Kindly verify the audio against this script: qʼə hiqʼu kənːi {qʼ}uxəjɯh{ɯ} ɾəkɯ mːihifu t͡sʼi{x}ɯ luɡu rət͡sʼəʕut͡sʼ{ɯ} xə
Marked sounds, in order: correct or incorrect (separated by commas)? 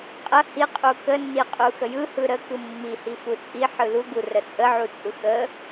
correct, correct, incorrect, correct